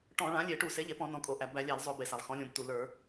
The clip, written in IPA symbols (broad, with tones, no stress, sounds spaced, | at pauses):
ʈ ɔ̃˧˩˧ ɭ ã˩˥ lʲ e˧˩˧ ʈ u˧˩˧ s e˩˥ ʎ e˩˧ p ɔ̃˧˩˧ n ɔ̃˩˧ kʼ o˩˧ ʔ æ˩˧ b æ˧˩˧ lʲ æ˧˩˧ l zˤ o˧˩˧ b e˩ s a˩ lˠ x ɔ̃˩˥ lʲ õ˩˧ b t u˩ l ə˞˧˩˧